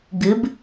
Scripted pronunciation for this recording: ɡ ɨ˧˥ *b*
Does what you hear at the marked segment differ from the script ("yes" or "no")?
no